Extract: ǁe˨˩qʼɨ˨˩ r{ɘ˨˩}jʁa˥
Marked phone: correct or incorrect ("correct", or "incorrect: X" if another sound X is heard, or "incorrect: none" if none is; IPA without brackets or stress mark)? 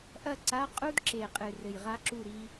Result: correct